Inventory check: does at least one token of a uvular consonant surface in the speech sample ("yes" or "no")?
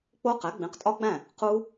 yes